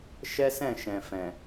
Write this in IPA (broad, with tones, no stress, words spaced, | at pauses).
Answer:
ʃɛ˦sɛ̃˦˨ʃɛ̃˨fɛ̃˨